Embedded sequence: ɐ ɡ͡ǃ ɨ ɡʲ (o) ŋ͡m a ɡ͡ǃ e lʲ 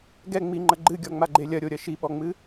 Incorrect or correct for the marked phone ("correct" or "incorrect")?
incorrect